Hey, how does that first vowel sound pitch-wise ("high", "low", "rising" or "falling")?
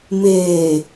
low